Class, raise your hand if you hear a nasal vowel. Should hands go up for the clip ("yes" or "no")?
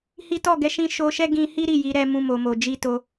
yes